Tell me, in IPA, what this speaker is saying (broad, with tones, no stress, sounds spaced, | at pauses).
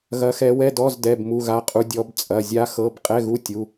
ɣ ɐ˦˥ x ɛ˦˥ w ɛ˧˥˧ d ɔ˧˥˧ z d ɛ˧˥˧ b m u˧˥˧ ɣ a˦˥ qʼ u˦˥ dʲ ɔ˦˥ b t͡sʼ ɐ˧˥˧ zʲ a˦˥ x ɤ˧˥˧ b qʼ ɛ˧˥˧ ɣ u˧˥˧ tʲ u˧˥˧